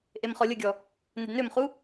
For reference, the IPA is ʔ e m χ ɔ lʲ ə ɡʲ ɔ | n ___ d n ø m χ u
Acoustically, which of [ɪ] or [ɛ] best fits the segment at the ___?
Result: ɪ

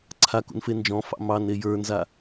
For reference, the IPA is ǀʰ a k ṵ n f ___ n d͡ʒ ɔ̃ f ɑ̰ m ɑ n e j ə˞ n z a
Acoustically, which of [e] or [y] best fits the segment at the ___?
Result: e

